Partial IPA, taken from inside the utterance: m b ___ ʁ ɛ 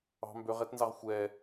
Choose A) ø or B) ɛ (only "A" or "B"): A